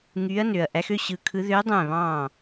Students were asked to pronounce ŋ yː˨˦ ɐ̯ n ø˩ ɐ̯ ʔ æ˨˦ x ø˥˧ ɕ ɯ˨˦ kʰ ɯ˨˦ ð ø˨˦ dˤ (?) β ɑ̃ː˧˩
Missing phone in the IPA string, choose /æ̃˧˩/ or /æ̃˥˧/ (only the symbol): æ̃˧˩